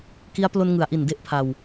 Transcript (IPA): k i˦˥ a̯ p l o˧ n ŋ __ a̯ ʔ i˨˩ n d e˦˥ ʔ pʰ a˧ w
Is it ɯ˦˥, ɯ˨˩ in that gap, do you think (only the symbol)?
ɯ˨˩